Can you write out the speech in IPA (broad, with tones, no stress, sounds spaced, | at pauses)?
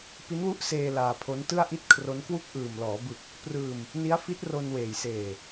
p i˦˥ n w u˦˥ ʔ s eː˧ l aː˧ pʰ o˦˥ n t ɯ˥˩ a̯ ʔ i˦˥ t̚ kʰ r o˦˥ n k w u˦˥ k̚ ʔ ɯː˨˩ m l ɔː˩˦ b ɯ˨˩ k̚ | p r ɯː˧ m | n i˦˥ a̯ f i˦˥ t̚ r o˧ n w eː˨˩ j s eː˨˩